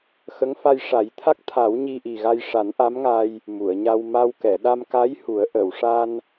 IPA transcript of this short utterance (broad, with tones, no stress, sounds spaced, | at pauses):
x ə˧˥ ŋ f a˧ j ʂ a˨˩˦ j t̪ʰ a˦˥ k̚ t̪ʰ a˨˩˦ w ɲ i˧ ʔ i˨˩ ɣ a˧ j ʂ a˨˩˦ n ʔ a˧˥ m ŋ a˧ j | m u˨˩˨ ə̯ ɲ a˧ w m a˧ w k ɛ˨˩˨ ɗ a˧ m k a˧˥ j h u˨˩˦ ə̯ ʔ ə˨˩˨ w ʂ a˧ n